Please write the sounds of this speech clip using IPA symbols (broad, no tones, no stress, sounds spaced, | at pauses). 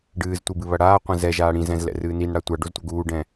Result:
ɖ ɨː z tʷ i b ɨ β ɐ ɽ aː qʷ ɛ̃ z ɛ ʒ aː ɽ ĩ z ɛ̃ z l ɛ̰ r ɨː n i n ɽ a tʷ a ɖ o z tʷ ɐ ɡ uː ɖ ɛ̃